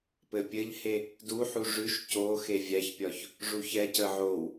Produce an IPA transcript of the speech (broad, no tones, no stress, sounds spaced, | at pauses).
p ɘ pʲ ɘ ʎ h e | d u ħ u ʐ ʉ ʃ c o x e vʲ æ ç pʲ ɒ ç | ʐ u ç ɛ c ə ʕ o w